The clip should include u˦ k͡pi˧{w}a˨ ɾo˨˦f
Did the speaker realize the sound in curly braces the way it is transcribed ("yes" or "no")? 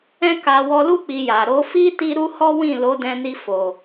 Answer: no